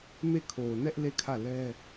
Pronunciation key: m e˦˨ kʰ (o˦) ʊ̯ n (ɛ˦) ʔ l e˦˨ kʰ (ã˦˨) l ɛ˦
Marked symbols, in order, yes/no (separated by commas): no, yes, no